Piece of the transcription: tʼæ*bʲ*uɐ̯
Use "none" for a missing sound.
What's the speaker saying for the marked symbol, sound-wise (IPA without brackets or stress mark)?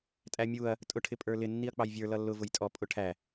mʲ